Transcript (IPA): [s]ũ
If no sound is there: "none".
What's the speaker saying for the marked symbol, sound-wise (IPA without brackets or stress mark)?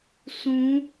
s